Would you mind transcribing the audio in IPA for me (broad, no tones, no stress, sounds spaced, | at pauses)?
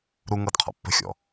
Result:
ɾ u ŋ ɤ d qʰ ɔ̰ pː ə̤ xʲ ɔ̰